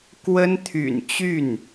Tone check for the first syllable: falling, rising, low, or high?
high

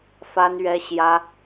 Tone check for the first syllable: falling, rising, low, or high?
high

